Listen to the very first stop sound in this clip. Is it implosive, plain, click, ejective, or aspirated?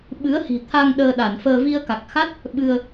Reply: implosive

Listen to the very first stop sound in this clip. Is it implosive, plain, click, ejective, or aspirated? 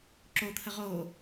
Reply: click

